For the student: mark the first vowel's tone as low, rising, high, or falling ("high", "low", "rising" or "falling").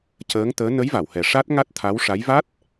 rising